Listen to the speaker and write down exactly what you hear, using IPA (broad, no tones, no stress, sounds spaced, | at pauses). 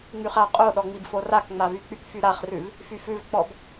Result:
ŋ͡m y χ a qʼ o ɗ ɔ ŋ͡m i b f o r a k ŋ͡m a v y k͡p y k f y ɾ a χ r ʉ v | f y f ʉ v k͡p ɔ b